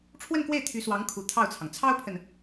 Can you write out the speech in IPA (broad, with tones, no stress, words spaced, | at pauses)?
ʈ͡ʂʰwə˥˧nkwe˥˩ɪ̯ t̪ʰy˧˥swɑ˧˥ŋkʰu˨˩ t̪ʰɑ˥˩ʊ̯t͡sʰɑ˩ŋ t͡sʰɑ˥ʊ̯pʰə˨n